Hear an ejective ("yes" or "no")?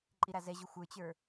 yes